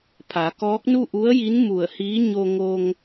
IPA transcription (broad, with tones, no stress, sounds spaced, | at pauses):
pʰ a˩˧ k ɔː˧˥ k̚ n u˥˨ ʔ u˧˥ ə̯ j i˧˥ n m u˧˩ ə̯ h iː˧˥ ɲ o˧ ŋ o˧ ŋ